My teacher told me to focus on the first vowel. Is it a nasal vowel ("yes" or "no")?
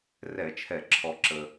no